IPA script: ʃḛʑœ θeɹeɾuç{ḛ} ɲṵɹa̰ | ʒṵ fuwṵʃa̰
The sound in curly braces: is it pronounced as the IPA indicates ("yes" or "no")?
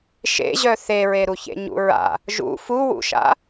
yes